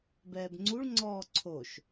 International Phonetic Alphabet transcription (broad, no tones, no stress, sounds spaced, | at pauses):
b ɛː b ŋ͡ǀ u ɭ ŋ͡ǀ ɔː ǀʰ o ʃ